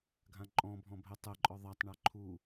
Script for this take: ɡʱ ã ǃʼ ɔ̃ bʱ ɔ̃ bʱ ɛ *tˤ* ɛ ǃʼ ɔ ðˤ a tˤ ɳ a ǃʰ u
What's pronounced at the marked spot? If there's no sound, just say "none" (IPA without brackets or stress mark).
tˤ